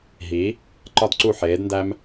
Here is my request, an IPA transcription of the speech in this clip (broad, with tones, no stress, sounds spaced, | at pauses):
ɦ i˨˦ | ǃ ɒ˦ d ǀ u˦˨ ħ eː˨˦ d n d æ˦ m